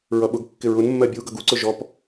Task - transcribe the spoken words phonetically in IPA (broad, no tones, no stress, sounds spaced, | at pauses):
ɹ ʌ ɓ ʊ ɡ kː ɪ ɹ ʊ n mː ɜ bʲ u ɡ ʌ ɡ u ǀ ʊ ʒ ɔ p